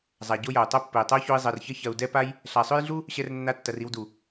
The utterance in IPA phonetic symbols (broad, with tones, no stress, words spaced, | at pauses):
zˤa˨ɟo˦jɐ˨u̯ tˤɐ˦˨pːɘ˨i̯tˤɐ˦u̯ço˧i̯ zˤɜ˨rçɐ˦ çɐ˧u̯ dɛ˦pa˦j | ɬa˨sˤø˦jɮu˦ | ɕɛ˦rnːa˦tːɐ˧r i˧wdu˨